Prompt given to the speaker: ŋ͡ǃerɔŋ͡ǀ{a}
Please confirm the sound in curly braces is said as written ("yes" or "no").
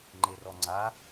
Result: yes